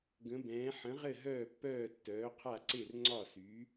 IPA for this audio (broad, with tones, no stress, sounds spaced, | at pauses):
ɡ ə̃˨˥ b ɛ̃ː˨˥ ħ ə̃˨˥ ʁ ɘ˥˨ ɦ œː˥˨ pː œː˥˨ tː œː˨˥ qʰ a˥˨ ǀ e˥˨ r ŋ͡ǀ ɒ˥˨ s y˨˥